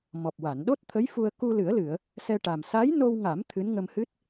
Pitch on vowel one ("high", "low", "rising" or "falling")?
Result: low